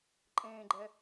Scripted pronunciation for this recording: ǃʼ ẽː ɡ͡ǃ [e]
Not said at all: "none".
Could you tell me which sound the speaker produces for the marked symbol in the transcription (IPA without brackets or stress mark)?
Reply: ɛ